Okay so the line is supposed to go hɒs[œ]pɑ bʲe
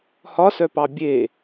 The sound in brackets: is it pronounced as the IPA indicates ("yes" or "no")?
yes